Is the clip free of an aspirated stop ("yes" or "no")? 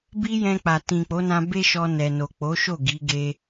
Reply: yes